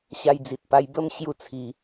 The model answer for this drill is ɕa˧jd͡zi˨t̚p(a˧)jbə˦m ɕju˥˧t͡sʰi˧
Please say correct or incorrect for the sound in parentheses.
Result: correct